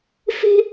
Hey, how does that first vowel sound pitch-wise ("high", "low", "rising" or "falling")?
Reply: high